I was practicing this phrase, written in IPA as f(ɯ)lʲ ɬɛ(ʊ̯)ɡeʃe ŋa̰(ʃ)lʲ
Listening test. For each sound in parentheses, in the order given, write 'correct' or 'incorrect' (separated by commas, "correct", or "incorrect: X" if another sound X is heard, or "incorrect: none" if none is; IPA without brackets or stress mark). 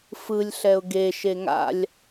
correct, correct, incorrect: none